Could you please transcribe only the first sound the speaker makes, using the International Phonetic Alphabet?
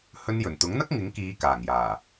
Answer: h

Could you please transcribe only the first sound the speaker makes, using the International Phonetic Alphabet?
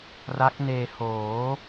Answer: r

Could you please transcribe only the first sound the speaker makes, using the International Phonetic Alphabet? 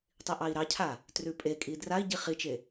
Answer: tˤ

